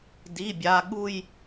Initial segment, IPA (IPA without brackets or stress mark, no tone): d